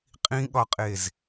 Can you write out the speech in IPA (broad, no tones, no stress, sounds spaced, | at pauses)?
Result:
qʼ ĩ ɠ ɒ qʼ e z